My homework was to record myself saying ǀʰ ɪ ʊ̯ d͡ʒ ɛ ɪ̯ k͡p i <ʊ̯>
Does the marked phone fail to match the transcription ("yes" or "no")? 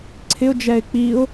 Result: no